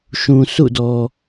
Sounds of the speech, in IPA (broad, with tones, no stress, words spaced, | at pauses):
ʃũ˨sṵ˦˨dɔ˨